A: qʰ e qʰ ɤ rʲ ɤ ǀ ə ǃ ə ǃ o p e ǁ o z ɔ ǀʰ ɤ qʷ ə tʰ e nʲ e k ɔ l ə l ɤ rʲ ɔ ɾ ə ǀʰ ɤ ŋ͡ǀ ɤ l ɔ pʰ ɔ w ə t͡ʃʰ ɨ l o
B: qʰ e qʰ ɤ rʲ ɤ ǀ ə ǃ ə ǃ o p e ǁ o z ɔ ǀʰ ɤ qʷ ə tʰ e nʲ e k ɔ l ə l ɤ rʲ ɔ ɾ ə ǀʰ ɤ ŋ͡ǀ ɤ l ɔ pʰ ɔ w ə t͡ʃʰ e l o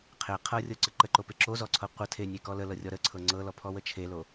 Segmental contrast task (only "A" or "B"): B